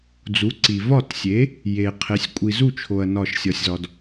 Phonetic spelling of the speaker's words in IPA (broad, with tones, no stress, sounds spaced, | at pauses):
d͡z u˩˥ ǀ i˩ v ɒ˥˩ t sʲ e˩˥ | j e˩ qʰ e˩˥ sʲ kʷʼ i˩ z u˥˩ t͡ʃʰ o˩ ɐ̯ n ɒ˥˩ ʃ sʲ ɒ˧ sʲ z ɒ˧ d